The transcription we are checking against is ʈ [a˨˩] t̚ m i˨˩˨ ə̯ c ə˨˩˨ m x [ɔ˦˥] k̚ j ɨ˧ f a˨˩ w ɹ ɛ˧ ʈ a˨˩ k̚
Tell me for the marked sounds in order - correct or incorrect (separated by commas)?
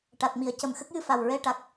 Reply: correct, incorrect